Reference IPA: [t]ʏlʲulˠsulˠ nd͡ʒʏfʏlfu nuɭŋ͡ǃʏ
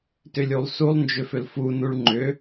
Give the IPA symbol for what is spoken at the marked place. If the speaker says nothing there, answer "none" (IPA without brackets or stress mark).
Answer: t